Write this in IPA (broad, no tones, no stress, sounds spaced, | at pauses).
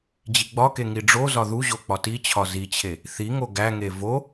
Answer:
d͡ʑ i ɡ͡b ɒ k e ŋ i ɖ͡ʐ o z ɒ ð u ʑ o k͡p ɒ t i t͡ɕʰ ɒ z i t͡ɕʰ e | θ i ŋ o ɡ æ ŋ e v o